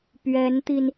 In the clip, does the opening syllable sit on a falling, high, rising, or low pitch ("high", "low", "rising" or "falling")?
rising